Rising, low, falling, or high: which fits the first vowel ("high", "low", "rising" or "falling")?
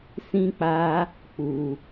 high